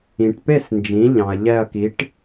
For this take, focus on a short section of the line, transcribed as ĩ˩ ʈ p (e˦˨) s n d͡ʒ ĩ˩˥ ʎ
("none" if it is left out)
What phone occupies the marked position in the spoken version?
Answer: e˦˨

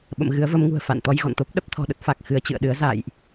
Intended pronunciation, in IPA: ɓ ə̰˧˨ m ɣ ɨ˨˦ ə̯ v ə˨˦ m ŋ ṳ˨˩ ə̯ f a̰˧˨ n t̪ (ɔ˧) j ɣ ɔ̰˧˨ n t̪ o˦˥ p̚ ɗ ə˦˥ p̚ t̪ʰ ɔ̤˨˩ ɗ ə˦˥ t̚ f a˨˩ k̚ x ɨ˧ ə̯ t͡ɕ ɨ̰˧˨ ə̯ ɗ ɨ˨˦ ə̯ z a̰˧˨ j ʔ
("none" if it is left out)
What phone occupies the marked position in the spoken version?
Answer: ɔ˧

